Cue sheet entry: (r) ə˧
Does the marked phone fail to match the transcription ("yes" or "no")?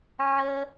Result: yes